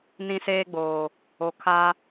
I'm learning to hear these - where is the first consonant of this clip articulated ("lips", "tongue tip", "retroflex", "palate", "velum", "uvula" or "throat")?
tongue tip